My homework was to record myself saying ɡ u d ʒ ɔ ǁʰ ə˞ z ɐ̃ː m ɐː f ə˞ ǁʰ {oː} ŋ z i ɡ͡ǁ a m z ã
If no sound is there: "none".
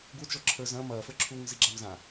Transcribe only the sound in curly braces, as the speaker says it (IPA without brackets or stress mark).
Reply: uː